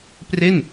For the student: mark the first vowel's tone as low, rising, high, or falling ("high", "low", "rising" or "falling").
falling